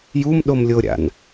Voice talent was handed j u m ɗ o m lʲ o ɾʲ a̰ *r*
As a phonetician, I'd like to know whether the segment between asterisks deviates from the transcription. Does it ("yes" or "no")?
yes